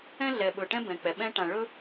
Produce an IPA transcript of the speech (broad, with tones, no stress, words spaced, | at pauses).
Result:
ɛ̃˦ɮɛ˨ɓɵ˨ʈɛ̃˦ bɛ̃˨k͡pɛ˨ ɓɛ̃˦ʈã˨ ɭɵ˦